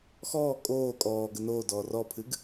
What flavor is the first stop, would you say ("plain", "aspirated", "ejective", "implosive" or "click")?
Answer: ejective